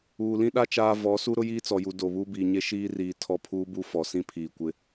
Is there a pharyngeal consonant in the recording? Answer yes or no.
no